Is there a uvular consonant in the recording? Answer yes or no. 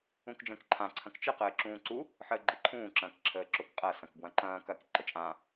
yes